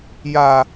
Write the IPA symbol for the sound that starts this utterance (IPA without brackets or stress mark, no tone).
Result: j